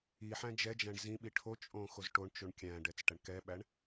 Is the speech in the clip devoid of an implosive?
no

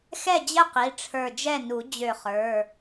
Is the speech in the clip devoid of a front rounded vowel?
no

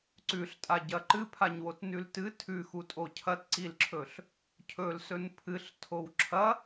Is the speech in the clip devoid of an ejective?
no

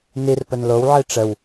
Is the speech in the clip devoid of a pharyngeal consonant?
no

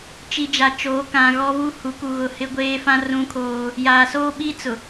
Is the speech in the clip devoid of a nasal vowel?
no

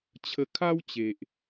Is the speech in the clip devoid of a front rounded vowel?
yes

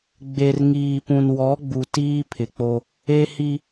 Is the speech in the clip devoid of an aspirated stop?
no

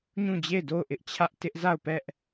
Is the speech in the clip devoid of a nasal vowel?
no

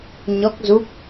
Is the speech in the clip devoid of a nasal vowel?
yes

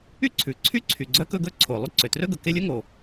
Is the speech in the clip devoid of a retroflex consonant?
yes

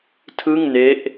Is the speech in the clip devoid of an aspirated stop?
no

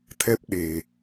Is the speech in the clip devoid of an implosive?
no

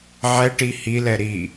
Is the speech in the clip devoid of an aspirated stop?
yes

